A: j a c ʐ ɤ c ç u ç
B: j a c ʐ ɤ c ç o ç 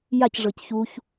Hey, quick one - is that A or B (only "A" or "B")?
A